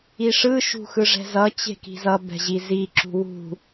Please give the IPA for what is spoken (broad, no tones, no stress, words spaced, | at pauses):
iʂɯ ʃṳxɯʐɛ̤zʌ t͡ɕe̤ki̤zʌ bɛ̤ʑizi ǁṳwṳ